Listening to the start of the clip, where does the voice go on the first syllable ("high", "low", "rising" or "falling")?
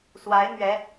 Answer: rising